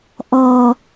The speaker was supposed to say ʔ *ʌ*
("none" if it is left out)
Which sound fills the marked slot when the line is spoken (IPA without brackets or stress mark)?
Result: ɔ